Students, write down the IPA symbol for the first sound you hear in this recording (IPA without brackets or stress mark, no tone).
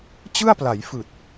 t͡ɕ